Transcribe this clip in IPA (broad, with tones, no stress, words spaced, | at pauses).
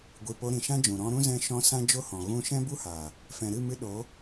ɡʷi˨ po˧ɾĩ˨ʃã˦d͡ʒũ˨ ɾɔ̃˧ɾũ˦ zɛ̃˧ʃɔ̃˧ sã˦d͡ʒo˦hɔ̃˨ ɣũ˧ʃɛ̃˦bu˦haː˨ | fɛ̃˨ɾɨ˦˨mɨ˧ ɗo˨˦